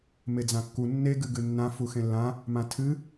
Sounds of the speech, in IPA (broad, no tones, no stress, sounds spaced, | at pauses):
m e d͡z ã kː u nː e ɡ ɨ ɡ ɨ nː ã f u x ẽ lː ã | m ã tʰ ɨ